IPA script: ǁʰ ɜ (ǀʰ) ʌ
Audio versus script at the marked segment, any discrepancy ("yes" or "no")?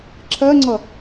yes